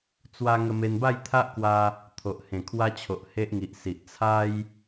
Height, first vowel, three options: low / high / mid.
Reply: low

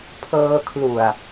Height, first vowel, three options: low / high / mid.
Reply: mid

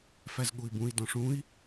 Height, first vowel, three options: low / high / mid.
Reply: low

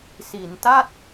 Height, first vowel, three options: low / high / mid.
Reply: high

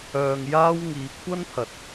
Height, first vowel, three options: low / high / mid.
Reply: mid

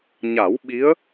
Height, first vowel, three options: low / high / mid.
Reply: low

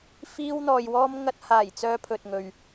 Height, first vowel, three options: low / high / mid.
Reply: high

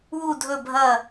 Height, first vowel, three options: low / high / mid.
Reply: high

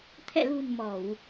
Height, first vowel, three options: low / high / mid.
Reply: mid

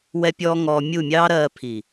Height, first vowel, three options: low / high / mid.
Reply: mid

